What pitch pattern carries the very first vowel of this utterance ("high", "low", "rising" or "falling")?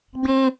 high